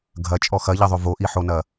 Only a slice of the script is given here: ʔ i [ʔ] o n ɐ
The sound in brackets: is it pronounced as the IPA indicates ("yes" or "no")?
no